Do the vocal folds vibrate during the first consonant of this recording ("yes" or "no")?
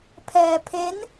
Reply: no